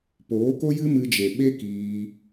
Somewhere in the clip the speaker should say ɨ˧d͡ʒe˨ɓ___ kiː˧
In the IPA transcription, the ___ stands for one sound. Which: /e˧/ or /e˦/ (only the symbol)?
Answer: e˦